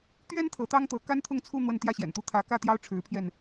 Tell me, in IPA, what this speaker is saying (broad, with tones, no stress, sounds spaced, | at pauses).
t̪ ɥ ɛ˥ n t̪ʰ ɤ˧˥ t̪ ɑ˥ ŋ t̪ ɤ˧˥ k a˥ n t̪ʰ ʊ˥˧ ŋ t͡sʰ u˥˧ n̪ w ə˥˧ n t̪ j ä˥˩ ɕ j ɛ̰˨˩ n t̪ u˥ t̪ʰ ä˧˥ k ä˥˩ t̪ j ɑ˥ ʊ̯ ʈ͡ʂʰ ɻ̩˧˥ pʰ j ɛ˧ n